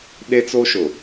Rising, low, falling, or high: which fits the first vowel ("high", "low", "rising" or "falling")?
high